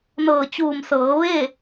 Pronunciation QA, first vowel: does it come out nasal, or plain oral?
oral